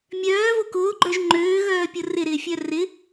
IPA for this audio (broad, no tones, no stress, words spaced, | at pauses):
mʲœːvo kʊːɡ͡ǃœʒ ŋ͡ǃøːɣœːpʲʊ rɪɾɪːfʲœ rɪ